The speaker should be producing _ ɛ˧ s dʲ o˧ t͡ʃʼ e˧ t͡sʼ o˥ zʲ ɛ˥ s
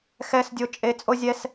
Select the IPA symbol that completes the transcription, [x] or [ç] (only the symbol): x